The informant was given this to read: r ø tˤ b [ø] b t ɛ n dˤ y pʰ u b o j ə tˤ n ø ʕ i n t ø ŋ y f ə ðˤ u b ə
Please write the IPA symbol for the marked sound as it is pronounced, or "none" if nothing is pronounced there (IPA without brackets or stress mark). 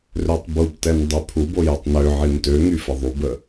u